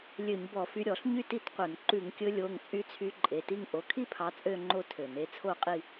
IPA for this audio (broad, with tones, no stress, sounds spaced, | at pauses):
lʲ ø˧˩˧ ɲ b ɔ˧˩˧ f y˨˦ ɾʲ ɔ˧˩˧ ɬ ɲ y˥˧ t i˥˧ t qʷ œ˧˩˧ n ǃ ʉ˧˩˧ ŋ kʲ ɵ˨˦ lʲ o˩˧˩ ŋ t͡sʼ y˨˦ t͡sʰ y˨˦ ǃʼ e˩˧˩ t i˥˧ ŋ ʔ o˩˧˩ kʰ i˥˧ pʰ ɑ˨˦ t͡sʼ ø˥˧ ŋ͡ǃ o˥˧ tʰ ø˧˩˧ n e˥˧ t͡sʰ o˥˧ qʼ i˥˧